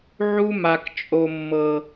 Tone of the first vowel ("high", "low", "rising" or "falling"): high